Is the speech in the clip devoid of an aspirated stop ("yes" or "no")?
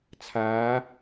no